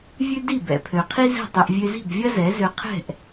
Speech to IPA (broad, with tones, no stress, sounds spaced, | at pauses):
vʲ ʉ˦ d i˦˨ b ɛ̰˨ pʰ ø˨ qʰ i˦ z i̤˦˨ tˤ i˧ ʔ vʲ ø˧ z i̤˦˨ b vʲ ɐ˦ z ɛ˨˦ z ø˧ qʰ ɛ̤˦˨ ʔ